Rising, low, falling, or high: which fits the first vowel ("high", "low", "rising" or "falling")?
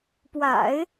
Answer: low